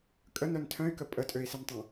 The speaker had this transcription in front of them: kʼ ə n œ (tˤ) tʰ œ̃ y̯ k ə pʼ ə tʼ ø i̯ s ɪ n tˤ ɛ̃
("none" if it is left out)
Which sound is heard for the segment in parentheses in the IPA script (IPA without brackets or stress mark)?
n